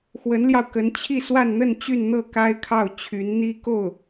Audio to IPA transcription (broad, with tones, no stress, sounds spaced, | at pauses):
x w ə˧˥ n l j ɑ˧ ʊ̯ k ə˧˥ n t͡ɕʰ i˥˧ s w a˥˧ n n̪ ə˥˧ n t͡ɕ y˥˧ n n̪ ɤ˥˩ k a˥ ɪ̯ kʰ ɑ˥˩ ʊ̯ t͡ɕʰ y˧˥ n n̪ i˥ k o˥˩ ʊ̯